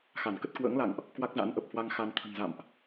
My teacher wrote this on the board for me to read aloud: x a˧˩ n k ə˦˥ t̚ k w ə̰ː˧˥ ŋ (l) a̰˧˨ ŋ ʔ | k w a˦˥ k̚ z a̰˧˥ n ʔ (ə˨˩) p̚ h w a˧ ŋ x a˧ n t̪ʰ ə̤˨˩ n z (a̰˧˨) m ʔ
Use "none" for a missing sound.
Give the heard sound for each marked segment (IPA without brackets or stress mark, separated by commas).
l, ə˨˩, a̰˧˨